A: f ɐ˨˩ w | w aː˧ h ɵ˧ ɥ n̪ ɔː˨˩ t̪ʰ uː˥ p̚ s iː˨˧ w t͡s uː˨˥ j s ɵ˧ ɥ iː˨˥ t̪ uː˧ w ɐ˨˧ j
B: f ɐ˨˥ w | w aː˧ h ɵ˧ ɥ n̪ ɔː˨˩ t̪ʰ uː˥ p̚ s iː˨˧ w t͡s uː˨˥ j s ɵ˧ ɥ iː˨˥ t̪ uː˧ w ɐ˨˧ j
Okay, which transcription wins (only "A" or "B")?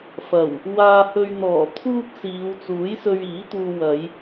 A